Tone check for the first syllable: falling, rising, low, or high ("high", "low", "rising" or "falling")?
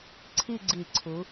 falling